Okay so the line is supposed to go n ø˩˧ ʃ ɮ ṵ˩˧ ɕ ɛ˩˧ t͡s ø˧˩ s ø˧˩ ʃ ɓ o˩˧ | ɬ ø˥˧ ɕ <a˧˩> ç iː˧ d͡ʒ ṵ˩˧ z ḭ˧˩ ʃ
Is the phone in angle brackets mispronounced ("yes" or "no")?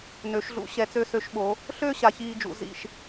no